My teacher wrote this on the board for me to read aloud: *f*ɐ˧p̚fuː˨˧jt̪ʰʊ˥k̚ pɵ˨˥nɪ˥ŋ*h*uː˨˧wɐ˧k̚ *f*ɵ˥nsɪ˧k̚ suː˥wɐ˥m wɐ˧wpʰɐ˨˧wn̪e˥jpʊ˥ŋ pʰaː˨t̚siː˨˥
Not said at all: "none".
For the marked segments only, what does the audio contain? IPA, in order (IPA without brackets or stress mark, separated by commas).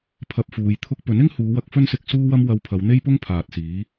pʰ, h, f